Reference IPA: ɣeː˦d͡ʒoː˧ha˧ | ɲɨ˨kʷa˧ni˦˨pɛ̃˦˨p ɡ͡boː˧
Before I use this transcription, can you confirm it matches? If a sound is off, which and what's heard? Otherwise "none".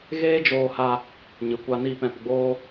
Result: none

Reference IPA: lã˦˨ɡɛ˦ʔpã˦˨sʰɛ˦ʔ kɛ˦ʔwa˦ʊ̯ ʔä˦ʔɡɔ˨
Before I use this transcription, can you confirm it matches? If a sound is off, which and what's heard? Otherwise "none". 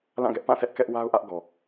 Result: none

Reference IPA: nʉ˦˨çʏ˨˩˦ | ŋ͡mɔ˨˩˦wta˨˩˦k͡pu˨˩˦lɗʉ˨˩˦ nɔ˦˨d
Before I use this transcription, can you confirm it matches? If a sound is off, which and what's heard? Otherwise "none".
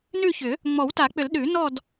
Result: u˨˩˦ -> ʏ˨˩˦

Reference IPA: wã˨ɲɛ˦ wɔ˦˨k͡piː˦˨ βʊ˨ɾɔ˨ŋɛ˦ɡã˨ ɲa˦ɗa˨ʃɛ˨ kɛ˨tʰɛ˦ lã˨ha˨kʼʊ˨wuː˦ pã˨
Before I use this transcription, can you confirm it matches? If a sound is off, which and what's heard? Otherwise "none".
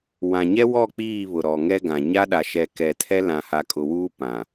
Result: none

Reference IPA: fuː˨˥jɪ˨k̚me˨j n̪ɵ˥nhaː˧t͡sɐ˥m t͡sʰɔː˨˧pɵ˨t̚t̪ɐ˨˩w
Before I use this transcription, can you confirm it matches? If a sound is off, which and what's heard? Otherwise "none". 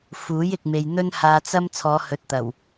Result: p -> h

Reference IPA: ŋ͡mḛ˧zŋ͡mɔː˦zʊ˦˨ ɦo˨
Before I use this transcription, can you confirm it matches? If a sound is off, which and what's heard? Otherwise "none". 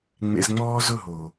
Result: none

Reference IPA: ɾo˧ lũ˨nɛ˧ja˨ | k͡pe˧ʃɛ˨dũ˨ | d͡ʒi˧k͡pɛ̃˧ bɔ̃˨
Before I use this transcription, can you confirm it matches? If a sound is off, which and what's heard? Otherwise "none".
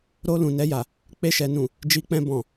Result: d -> n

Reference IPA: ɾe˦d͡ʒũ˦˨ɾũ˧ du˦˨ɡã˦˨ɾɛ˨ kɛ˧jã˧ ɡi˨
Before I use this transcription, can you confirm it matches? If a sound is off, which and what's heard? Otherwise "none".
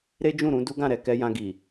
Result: u˦˨ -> u˦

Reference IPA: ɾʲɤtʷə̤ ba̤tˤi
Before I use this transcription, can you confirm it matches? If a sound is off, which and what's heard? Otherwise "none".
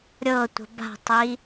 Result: none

